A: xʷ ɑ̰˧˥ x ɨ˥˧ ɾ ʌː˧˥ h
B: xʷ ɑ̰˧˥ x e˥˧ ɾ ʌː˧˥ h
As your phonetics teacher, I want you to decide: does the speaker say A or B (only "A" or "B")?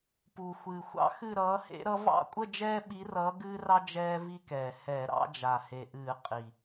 A